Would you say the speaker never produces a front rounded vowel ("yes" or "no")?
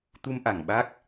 yes